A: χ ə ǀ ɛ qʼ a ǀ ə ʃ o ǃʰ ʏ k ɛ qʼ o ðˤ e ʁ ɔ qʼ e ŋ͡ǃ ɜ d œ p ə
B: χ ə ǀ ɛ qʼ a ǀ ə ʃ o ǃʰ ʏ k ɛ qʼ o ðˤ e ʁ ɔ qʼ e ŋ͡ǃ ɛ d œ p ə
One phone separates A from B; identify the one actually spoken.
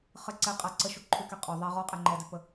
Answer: B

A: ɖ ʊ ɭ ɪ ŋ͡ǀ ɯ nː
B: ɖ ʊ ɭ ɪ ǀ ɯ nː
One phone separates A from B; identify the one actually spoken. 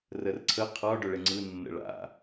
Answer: A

